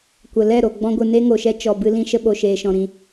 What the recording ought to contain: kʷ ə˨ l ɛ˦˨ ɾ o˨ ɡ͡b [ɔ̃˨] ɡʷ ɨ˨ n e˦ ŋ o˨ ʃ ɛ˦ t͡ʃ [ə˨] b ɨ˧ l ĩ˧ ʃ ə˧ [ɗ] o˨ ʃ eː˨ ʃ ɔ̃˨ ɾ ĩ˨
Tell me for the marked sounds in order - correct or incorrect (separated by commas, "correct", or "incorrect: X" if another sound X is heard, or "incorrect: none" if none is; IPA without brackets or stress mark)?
incorrect: ɔ̃˧, incorrect: ɔ˨, incorrect: ɓ